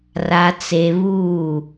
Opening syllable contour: low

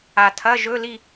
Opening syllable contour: low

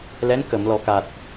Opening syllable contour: rising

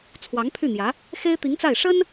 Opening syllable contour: rising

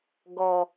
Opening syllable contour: low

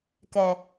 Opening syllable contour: low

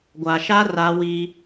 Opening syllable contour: low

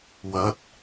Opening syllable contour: rising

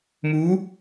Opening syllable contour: rising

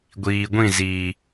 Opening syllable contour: low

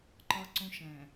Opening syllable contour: high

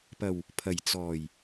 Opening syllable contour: low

